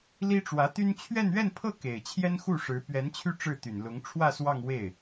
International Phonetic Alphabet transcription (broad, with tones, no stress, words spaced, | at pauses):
li˥ʈ͡ʂwä˧˥t̪y˥n t͡ɕʰɥɛ˥˧nɥɛ˥˧npʰɤ˥˩ ke˨˩ɪ̯ t͡ɕʰjɛ˥nxu˥˩ʂɻ̩˧˥ pɥɛ˧˥nt͡ɕʰy˥˧ ʈ͡ʂɻ̩˥˩t̪y˨˩nlʊ˧˥ŋ ʈ͡ʂʰwä˥˧ swɑ˥˧ŋwe˥˩ɪ̯